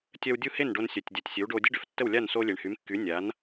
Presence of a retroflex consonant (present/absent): present